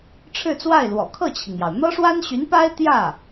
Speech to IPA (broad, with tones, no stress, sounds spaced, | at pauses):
ʈ͡ʂʰ ɻ̩˥˧ t͡s w a˥˩ ɪ̯ l w ɔ̰˨˩ kʰ ɤ˥˩ t͡ɕʰ i˩ ŋ j ɑ˩ ʊ̯ n̪ ɤ˥ ʂ w a˥ n ɕ y˧˥ n p a˥ ɪ̯ t̪ j ä˥˩